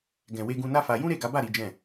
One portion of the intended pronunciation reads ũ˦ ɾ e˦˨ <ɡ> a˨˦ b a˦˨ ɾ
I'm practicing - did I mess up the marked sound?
no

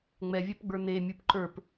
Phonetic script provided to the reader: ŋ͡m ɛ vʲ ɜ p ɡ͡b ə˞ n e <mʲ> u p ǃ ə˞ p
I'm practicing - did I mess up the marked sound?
no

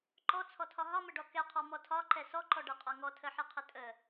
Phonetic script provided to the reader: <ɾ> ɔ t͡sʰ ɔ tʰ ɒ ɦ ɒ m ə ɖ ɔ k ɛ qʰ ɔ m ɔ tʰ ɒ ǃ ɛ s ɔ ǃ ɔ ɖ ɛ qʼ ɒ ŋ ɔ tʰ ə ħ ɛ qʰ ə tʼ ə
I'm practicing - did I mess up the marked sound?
yes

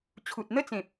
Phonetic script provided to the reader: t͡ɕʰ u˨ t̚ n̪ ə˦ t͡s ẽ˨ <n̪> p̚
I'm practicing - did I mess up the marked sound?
yes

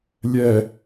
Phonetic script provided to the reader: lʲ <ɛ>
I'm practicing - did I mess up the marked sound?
no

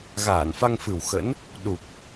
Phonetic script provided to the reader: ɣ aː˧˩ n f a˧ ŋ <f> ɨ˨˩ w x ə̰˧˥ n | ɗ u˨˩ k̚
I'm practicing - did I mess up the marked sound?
no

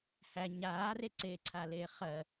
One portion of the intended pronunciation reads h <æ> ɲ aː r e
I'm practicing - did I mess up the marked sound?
no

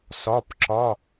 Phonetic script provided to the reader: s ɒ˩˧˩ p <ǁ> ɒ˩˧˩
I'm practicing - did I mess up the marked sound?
no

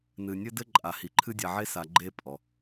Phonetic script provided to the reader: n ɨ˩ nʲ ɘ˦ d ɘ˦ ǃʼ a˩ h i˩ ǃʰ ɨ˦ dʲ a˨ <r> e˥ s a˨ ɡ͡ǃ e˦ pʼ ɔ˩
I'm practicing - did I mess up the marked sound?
yes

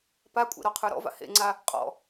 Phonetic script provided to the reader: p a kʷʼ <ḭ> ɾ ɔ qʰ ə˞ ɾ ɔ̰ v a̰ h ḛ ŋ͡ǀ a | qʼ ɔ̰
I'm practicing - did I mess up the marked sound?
yes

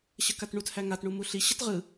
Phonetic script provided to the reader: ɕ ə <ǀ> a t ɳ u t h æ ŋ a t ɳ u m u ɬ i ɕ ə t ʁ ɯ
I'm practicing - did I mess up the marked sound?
yes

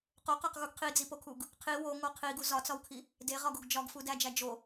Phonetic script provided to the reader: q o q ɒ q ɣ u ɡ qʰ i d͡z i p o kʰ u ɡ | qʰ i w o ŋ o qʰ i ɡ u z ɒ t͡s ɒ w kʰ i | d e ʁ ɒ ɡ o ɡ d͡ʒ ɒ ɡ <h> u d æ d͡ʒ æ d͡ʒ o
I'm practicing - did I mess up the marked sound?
yes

